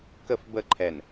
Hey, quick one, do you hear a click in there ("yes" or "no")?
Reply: yes